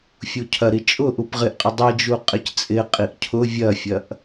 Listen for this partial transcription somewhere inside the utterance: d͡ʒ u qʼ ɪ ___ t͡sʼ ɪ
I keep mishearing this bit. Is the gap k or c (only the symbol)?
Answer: c